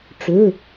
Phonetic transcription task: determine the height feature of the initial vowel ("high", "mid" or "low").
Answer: mid